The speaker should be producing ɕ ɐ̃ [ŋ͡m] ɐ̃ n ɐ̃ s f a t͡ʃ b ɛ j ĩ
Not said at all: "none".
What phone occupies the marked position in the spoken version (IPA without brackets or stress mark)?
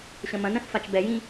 m